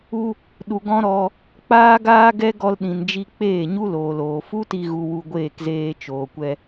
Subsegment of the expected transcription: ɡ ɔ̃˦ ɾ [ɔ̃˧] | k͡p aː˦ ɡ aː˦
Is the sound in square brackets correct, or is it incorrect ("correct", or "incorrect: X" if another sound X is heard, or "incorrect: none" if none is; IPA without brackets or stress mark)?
incorrect: ɔ˧